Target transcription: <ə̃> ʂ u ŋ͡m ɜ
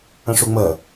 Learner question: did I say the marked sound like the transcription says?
yes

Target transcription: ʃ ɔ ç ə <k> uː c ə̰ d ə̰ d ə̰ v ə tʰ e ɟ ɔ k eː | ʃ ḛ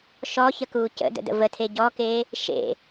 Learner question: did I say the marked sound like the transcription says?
yes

